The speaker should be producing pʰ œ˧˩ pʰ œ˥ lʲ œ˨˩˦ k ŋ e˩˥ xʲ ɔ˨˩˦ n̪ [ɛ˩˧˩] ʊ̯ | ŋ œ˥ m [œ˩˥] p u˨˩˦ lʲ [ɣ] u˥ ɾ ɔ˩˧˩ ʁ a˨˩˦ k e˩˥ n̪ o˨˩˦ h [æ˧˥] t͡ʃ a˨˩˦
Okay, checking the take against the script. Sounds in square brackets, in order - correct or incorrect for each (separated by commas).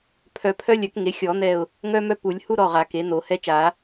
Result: incorrect, incorrect, incorrect, incorrect